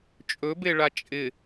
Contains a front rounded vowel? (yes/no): no